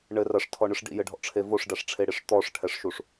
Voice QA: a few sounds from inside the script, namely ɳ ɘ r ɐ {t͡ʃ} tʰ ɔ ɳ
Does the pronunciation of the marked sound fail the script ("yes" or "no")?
yes